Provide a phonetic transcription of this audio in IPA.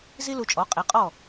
zi˥lu˧t͡ʃʼɔ˩˥ qʼe˩˥qʼɔ˥˩

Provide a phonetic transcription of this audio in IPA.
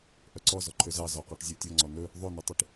ʔœǀɔ zɔǃʰøzɑ zɔqɔʈzʲotʲɔ ŋ͡ǀɔnɵ | ðˤonytˤiʈ

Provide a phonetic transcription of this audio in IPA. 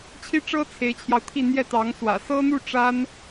t͡ɕʰi˥ʈ͡ʂɤ˥ t͡sʰe˧˥ɪ̯t͡ɕʰjɑ˧ʊ̯t̪ʰi˥˧ n̪jɛ˥˩t̪ɑ˧˥ŋswä̰˨˩ sɤ˥n̪u˥˩ ʈ͡ʂa˥n

